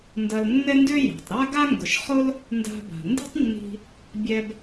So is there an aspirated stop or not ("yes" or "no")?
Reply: no